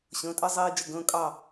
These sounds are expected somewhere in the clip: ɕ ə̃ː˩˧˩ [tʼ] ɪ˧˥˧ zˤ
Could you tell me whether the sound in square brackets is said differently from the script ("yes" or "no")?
no